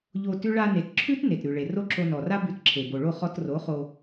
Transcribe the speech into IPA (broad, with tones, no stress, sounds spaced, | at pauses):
ʎ o˧ t ʉ˦ ɭ a˧ n e˨ t ǁʰ ʉ˦ t n e˨ t ɾ ʉ˨ ɭ e˨ r o˦ ǁ o˧ n ɔ˨ r a˦ b ʉ˧ t ǁʰ e˨ b o˨ ɭ o˦˨ χ ɔ˧ t r o˨˦ χ o˧